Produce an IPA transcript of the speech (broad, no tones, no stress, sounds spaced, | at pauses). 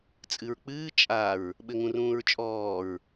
t͡sʼ ɨ ɹ k͡p ɨː t͡ʃʼ a ɹ | ɓ ɘ ŋ ũ r ũː ɹ t͡ʃʼ ɔː ɹ